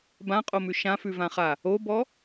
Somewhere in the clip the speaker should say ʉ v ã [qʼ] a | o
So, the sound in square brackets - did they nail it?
no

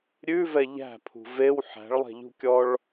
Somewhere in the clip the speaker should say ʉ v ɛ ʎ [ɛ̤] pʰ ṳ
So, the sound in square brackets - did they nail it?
no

